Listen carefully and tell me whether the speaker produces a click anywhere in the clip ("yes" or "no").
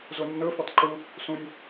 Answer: yes